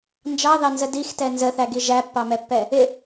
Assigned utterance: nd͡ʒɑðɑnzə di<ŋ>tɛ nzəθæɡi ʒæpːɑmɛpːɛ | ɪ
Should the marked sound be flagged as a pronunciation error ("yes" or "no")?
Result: yes